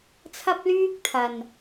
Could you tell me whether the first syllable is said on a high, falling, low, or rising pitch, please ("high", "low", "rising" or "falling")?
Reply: high